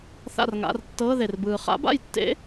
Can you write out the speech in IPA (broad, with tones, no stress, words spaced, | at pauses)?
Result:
θa̰˥˨rŋa̰˧˥˧r tːɤː˧˥˧ðe˨rbɯː˨ χa̰˦˥ba̰˥˨jtːḛ˦˥